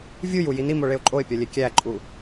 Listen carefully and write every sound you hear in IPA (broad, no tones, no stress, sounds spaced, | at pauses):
vʲ u j u j i n i m o ɭ e ʊ̯ ǃʼ o ɪ̯ pʲ ɒ lʲ e kʲ æ ǃʼ u